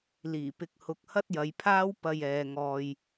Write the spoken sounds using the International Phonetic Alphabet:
l iː˨˩ p ɪ˧ k̚ h ʊ˧ k̚ h ɐ˥ t̚ j ɐ˨˧ j pʰ aː˥ w p ɐ˧ j ɛː˨ ŋ ɔː˨ j

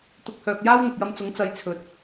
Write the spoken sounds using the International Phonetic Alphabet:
t̪ ʊ˧ k̚ h œː˨ k̚ j aː˥ w n̪ ʊ˨ k̚ j ɐ˧ m t͡s ʊ˨˥ ŋ t͡s ɐ˨˧ j t͡sʰ ɵ˨ t̚

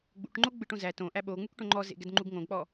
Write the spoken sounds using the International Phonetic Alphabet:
ɡ͡b ṵ ʈ ŋ͡ǃ o ɡ͡b ɯ ʈ õ z æ t õ ʔ æ ɓ o ŋ͡m u k ʈ õ ŋ͡ǃ ɔ z ḛ ɡ ɛ d ŋ͡ǃ u ɡ ŋ õ ɡ k͡p ɔ

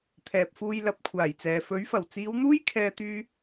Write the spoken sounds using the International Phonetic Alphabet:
t̪ʰ ɛː˨ p̚ f uː˧ j l ɐ˨˥ p̚ kʷʰ aː˨˩ j t͡s ɛː˨ f ɵ˨˥ ɥ f ɐ˨˩ w t͡s iː˨˧ w n̪ uː˥ j kʰ ɛː˧ t̪ yː˧

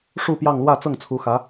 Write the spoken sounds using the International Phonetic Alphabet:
ʂ u˥˧ p j ɑ˥˧ ŋ l w ä˥˧ t͡s ɤ˥˩ ŋ t͡sʰ u˧˥ x ä˧˥

